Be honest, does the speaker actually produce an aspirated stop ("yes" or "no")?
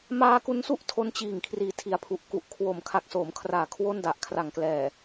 yes